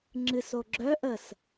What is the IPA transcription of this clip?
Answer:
ŋ͡ǁ ɨ s o ɡ͡ǁ œ ʔ ə s

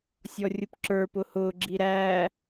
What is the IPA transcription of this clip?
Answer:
sʲ ɔ rʲ ʊ p ǁ ə˞ p ʊ h ʊː ɡ͡ǁ i ɾ æː

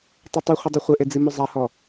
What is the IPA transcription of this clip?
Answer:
tˤ o tˤ u χʷ ɨ dˤ u χʷ ɘ ʔ e d͡z i m u zˤ a h ɔ

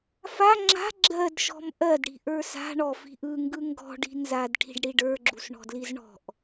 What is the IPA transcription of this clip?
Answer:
f a ŋ͡ǁ a̤ ɡ͡ǁ ɜ d ʃ ɔ̤ m ʔ ɜ d ɽ i̤ ʔ ə˞ s a̤ ɳ ɔ f i̤ ʔ ɯ ŋ ɡ ɯ ŋ ɡ ɔ̤ ɖ i̤ n z a d ʈʰ i̤ ɖ ɽ i ɖ ə˞ ɡ͡ǁ u s ɳ ɔ̤ d l i z ɳ ɔ̤ ʔ

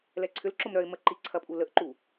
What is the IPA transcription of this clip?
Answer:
l ɛ ǀʰ ʏ l ǁ ʊ m ɾ œ ɪ̯ m ə ǃ i ǀʰ ɐ pʼ u l ə ʔ ǃ u

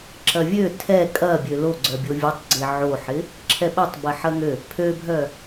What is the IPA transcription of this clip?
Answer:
ǁ ɐ vʲ ø tʰ ɛ kʼ ɐ bʲ ø l o ɡ͡ǀ œ bʲ o vʲ o tˤ ɡ͡ǀ ɪ ʕ o ħ ɪ | ǁʰ ɛ ɓ ɛ tˤ b ɛ ħ ɐ ŋ ø | pʰ ø bʱ œ

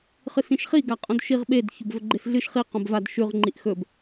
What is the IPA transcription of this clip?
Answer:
χ ɨ s ĩ ʃ χ i ɡ a qʼ õ d ʃ i ʁ ɓ e d ç o b v ɵ ɡ͡ǃ e s ɮ ɨ ʃ χ i q õ b v a d ʃ ʉ ʁ ŋ͡ǃ i ʔ x ɵ b

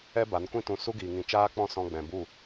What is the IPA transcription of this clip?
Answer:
ɛ˦ b a˨˦ n kʷ ĩ˧ t ũ˨ s u˦ ɡ iː˨ ŋ ĩ˨ t͡ʃ aː˦ k͡p ɔ̃˦ s ɔ̃˧ ɡ͡b ɛ̃˨ b u˦˨

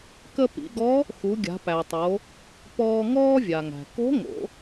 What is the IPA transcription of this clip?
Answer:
k ə˧ p ḭ˩˧ ɡ ɔ˧˥ | x u˩˧ ɡʲ a̤˩˧ p æ˩ tˤ o˩˧ | p ɔː˧ ŋ ɔː˥ vʲ a˩ ŋ æ̤˩ k o̤˧˥ ŋ o̰˩˧

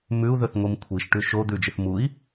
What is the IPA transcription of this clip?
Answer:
m ʉ u̯ ð ɵ θ ŋʷ i m kʷʰ i ʃ ʈ ʉ ʃ o d̪ ʉ d͡ʒ ɨ θ m u i̯

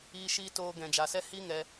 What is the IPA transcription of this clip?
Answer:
iː˧ ʃ iː˧ t oː˧ ɡ ɛ̃˨ d͡ʒ a˨ s ɛ˦ h i˦ ŋ ɛ˧

